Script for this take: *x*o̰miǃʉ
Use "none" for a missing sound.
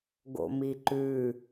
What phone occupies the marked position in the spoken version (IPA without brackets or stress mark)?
ɡ